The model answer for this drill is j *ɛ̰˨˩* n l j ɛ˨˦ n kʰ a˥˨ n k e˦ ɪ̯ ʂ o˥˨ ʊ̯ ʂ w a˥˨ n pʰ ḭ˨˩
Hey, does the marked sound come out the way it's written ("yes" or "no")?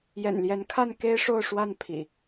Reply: yes